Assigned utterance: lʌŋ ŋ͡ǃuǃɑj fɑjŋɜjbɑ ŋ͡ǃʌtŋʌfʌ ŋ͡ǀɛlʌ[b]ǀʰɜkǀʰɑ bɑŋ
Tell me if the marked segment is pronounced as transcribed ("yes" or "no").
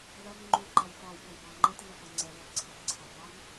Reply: yes